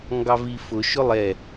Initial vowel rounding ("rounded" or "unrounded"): unrounded